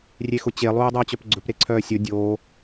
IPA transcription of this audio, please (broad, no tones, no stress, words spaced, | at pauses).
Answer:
rʲexʊt͡ɕe lˠuːdˤœːt͡ɕœpɡ͡ǀɵp ɾeǀʰœːsʲo dʲo